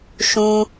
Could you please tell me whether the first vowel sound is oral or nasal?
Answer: nasal